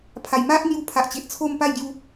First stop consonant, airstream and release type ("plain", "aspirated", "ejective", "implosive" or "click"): aspirated